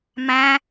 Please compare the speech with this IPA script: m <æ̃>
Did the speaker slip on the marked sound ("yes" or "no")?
no